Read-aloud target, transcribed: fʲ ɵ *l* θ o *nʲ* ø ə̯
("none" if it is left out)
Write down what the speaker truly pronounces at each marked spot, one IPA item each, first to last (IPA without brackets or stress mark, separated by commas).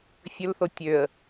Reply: l, tʲ